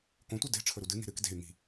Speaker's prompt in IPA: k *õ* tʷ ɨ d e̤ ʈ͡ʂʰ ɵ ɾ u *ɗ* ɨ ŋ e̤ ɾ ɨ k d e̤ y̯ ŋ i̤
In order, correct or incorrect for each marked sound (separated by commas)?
correct, incorrect